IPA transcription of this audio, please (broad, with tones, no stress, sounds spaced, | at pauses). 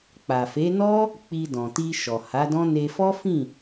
k͡p a˨ f e˨˦ n ɔ˦ | k͡p i˧ d ɔ̃˨ t i˧ ʃ ɔ˨ h a˨˦ d ɔ̃˦ n e˧ f ɔ˦ f ĩ˦˨